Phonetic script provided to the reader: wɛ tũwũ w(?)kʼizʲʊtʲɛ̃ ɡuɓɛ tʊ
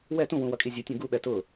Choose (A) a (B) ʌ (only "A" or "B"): B